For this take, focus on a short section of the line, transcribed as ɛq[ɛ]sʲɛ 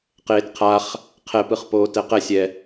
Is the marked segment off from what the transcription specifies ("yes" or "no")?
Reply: no